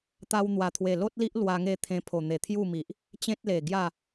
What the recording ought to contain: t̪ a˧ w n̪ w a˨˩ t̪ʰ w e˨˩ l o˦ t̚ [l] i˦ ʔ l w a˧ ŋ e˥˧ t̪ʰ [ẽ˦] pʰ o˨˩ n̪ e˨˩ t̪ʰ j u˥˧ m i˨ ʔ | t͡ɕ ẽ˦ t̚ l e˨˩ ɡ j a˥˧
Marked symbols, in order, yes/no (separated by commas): yes, no